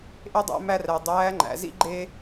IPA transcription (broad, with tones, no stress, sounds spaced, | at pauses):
ʔ e˥ dˤ æ̰˧˥ m æ˥ r æ˧ dˤ æː˧˥ ŋ͡ǃ æ̰˩˧ z ḭ˥ ɡ͡ǃ e˥